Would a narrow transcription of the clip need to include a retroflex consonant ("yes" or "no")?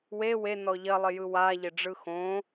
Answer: yes